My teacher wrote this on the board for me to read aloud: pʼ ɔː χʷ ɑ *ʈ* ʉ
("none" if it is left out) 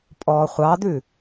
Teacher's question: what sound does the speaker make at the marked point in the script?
d̪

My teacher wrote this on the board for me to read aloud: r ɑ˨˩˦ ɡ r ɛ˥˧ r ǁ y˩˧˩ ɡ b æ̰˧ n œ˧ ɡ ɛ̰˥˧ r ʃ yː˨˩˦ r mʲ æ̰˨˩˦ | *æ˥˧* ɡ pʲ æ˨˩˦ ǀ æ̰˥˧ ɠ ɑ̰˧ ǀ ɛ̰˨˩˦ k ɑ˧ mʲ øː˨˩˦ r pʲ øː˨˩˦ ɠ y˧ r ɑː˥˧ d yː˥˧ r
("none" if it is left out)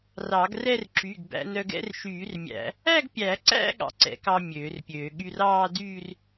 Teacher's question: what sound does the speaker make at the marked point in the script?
æ˥˧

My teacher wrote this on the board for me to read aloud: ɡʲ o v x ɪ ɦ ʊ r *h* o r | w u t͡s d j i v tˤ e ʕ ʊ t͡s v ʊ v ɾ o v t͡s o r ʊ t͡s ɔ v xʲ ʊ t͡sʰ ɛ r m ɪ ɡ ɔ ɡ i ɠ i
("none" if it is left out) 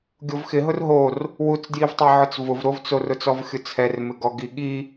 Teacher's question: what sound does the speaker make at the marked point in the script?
ɦ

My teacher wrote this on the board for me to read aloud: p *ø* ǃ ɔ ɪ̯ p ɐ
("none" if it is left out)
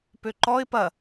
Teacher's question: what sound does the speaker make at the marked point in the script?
ø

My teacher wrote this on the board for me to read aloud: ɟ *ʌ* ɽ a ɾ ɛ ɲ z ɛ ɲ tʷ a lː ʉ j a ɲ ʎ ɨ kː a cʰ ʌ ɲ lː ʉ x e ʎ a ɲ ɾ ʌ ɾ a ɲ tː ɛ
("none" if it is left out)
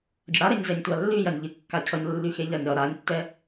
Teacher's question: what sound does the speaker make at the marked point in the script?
ʌ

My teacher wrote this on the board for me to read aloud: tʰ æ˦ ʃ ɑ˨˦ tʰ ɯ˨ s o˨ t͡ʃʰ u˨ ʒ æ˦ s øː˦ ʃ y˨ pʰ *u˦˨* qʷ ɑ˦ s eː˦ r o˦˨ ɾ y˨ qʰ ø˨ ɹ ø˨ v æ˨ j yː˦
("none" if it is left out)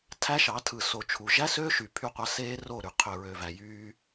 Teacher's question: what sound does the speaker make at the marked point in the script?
y˦˨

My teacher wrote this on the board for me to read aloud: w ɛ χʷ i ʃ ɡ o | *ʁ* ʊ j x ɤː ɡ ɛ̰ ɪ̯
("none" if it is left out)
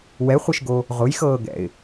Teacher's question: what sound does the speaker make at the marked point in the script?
ʁ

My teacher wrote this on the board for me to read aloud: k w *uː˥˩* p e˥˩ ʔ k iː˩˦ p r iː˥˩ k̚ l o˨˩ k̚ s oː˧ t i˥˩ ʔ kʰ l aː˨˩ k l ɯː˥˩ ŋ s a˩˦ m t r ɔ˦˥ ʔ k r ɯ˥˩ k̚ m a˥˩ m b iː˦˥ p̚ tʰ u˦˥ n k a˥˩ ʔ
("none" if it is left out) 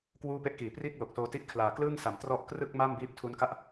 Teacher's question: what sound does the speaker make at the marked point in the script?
uː˥˩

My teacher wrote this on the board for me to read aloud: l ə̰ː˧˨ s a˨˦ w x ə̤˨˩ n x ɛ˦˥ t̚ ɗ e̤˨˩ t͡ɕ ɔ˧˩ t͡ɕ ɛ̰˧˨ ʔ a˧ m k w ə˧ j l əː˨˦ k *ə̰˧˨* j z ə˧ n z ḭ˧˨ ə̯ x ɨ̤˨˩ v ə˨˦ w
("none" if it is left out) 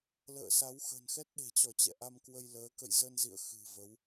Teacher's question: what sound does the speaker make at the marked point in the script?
ə̰˧˨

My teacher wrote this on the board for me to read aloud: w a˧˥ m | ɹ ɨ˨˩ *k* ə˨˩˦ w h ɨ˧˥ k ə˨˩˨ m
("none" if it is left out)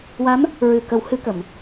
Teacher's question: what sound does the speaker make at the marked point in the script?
k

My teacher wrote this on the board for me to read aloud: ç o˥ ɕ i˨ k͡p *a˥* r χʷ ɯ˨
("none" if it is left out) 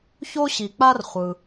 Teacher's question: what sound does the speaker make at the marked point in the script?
a˥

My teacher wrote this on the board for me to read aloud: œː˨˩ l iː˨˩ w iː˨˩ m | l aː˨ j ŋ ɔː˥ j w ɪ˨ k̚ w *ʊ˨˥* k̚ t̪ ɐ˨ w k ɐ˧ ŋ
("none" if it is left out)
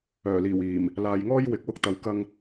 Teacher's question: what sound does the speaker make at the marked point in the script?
ʊ˧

